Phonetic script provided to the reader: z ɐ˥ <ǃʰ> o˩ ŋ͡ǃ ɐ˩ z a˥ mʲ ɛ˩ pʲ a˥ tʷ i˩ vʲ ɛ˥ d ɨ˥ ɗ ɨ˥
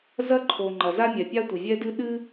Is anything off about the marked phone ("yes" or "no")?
no